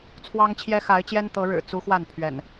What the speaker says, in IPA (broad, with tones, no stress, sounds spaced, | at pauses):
t͡sʰ w ɑ˦ ŋ t͡ɕʰ j ɛ˦ x a˨˦ ɪ̯ t͡ɕ j ɛ˦ n t̪ ɤ˨˦ ɻ ɻ̩˨˩ t͡s u˦ x w a˥˨ n pʰ ɥ ɛ̰˨˩ n